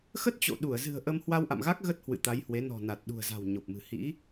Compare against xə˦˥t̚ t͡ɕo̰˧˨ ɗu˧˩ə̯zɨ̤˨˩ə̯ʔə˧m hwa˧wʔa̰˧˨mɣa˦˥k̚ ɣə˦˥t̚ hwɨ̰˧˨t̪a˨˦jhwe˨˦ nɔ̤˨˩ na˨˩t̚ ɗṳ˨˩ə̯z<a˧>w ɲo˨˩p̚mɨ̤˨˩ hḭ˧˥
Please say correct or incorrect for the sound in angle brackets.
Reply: incorrect